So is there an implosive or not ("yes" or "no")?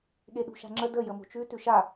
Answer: yes